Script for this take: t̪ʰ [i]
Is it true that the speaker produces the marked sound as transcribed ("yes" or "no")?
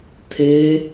no